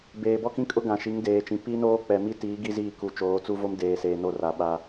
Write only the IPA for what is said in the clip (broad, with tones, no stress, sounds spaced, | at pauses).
b eː˨ b ɔ˦ k ĩ˦ kʼ ʊ˦ ɡ ã˨ ʃ i˨˦ ŋ d eː˨ t͡ʃ ĩ˨ p i˦ n oː˦ k͡p ɛ˨ m i˦ t iː˨˦ ɡ i˦ z iː˦˨ k u˨ t͡ʃ oː˨˦ t͡s u˦ v o˦ m d eː˨ s eː˨ n o˦˨ r a˨ ɓ a˨